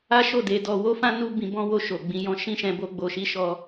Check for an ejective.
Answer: absent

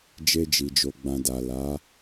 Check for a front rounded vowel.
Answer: absent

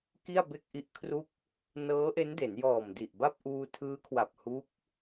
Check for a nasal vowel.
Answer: absent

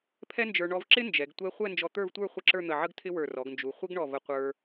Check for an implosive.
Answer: absent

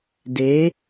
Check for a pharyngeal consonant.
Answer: absent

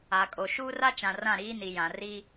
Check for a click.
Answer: absent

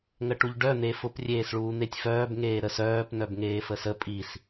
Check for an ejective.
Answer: present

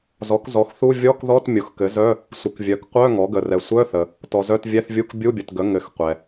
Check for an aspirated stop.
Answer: absent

